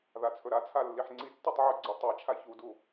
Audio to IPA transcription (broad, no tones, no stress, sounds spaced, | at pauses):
ð a t͡sʰ ɵ ɾ a t͡sʰ a lː i ħ ŋ͡ǀ i tː ɵ tˤ ʕ ɵ ɡ͡ǀ u tˤ a t͡ʃʰ a ç u d u